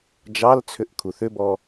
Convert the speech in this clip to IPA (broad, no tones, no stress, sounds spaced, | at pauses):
d͡ʒ ɑ l t͡sʰ ʏ ʔ kʰ u θ ʏ b ɔ